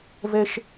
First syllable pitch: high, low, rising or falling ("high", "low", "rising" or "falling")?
high